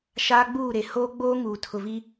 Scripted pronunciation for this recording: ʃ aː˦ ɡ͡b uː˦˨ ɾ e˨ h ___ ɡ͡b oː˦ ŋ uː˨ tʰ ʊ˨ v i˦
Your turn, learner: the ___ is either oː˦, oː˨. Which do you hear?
oː˦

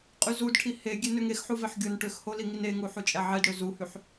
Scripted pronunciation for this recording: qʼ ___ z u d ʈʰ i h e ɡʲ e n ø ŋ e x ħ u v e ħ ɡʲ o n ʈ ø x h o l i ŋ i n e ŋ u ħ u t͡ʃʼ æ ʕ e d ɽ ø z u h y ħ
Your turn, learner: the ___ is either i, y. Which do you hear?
y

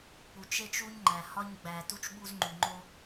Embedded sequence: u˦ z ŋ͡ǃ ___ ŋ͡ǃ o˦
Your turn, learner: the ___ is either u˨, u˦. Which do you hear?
u˨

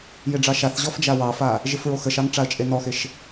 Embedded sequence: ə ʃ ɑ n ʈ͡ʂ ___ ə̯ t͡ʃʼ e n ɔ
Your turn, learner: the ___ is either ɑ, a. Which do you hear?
a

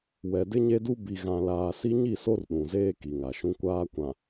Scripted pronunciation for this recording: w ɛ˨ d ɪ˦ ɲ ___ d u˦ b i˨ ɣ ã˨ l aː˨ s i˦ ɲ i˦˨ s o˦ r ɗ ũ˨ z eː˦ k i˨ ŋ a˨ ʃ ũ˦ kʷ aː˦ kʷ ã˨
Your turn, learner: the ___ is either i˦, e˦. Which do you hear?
e˦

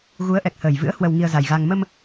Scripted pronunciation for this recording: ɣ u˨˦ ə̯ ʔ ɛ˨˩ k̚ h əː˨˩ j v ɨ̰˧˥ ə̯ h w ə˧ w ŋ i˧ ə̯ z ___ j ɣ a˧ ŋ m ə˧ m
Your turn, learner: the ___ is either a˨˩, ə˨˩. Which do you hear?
a˨˩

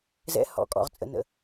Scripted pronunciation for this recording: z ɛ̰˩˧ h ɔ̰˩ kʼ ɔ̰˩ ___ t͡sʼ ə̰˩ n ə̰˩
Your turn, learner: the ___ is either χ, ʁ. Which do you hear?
ʁ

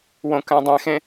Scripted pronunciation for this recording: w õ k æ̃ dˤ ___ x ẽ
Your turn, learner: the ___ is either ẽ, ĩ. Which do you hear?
ẽ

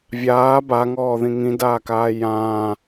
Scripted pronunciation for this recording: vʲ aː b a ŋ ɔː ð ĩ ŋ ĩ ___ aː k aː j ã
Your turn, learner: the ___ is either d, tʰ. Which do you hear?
d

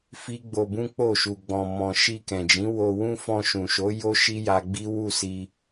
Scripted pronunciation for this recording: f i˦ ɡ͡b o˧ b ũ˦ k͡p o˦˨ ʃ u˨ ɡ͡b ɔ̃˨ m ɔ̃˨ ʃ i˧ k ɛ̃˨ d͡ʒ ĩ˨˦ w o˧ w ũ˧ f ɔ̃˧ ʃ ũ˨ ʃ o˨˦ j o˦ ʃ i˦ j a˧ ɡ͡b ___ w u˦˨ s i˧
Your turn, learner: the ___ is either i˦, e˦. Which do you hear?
i˦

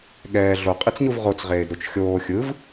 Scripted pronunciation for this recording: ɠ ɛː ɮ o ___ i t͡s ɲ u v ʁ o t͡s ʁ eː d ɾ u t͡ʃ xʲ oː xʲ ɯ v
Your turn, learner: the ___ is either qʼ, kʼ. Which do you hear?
qʼ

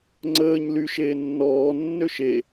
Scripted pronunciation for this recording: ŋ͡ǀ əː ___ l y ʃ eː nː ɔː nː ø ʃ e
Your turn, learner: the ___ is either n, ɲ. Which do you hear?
ɲ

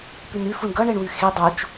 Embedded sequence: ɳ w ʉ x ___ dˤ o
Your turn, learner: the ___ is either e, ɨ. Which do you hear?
e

